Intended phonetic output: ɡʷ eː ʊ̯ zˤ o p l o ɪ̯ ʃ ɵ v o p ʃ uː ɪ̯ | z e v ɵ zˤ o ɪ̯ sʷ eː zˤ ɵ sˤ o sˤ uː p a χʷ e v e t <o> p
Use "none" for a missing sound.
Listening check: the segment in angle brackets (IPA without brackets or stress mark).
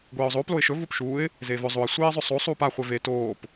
oː